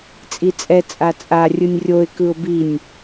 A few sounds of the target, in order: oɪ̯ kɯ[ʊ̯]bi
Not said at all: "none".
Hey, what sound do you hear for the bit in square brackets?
ʊ̯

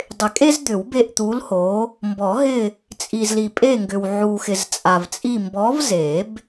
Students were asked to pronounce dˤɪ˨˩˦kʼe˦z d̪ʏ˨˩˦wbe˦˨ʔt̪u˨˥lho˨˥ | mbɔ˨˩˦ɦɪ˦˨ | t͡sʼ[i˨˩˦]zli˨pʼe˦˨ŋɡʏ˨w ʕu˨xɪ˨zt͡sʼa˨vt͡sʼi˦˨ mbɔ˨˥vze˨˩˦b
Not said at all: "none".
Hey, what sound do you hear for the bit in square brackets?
i˨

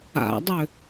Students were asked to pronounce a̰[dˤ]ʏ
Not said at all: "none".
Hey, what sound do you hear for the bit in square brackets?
dˤ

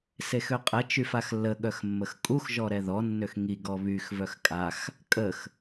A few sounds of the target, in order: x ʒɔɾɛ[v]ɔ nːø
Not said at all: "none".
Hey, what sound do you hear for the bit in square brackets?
ð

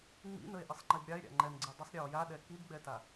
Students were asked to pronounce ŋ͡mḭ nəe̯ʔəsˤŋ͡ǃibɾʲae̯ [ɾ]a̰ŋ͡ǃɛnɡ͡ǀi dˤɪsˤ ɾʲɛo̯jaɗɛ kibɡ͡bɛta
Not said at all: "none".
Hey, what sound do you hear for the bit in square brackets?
ɾʲ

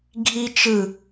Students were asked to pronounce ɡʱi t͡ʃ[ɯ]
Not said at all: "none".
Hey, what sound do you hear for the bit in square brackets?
ɯ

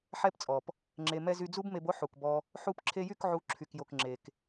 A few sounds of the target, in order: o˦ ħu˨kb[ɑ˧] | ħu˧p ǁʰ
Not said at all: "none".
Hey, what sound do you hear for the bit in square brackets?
ɔ˧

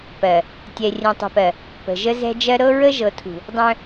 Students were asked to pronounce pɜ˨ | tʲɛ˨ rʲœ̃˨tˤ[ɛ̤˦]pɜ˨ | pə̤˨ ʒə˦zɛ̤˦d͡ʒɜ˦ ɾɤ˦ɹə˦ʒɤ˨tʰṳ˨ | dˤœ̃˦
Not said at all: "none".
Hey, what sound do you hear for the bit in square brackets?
ɛ̤˨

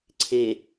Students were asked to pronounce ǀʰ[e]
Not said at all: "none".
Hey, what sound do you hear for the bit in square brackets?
e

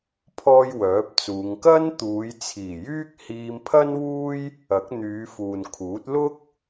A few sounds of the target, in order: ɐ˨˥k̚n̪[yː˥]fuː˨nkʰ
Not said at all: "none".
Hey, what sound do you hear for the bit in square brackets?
yː˨˧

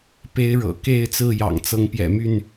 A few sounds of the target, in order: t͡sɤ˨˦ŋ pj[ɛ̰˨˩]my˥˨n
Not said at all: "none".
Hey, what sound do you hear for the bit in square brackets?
ɛ̰˨˩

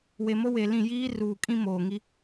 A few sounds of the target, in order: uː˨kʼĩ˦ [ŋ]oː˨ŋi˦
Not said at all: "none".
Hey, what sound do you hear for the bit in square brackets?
m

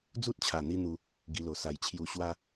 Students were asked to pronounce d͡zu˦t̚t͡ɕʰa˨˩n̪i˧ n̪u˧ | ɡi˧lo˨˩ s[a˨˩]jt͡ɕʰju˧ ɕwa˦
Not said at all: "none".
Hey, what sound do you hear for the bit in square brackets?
a˨˩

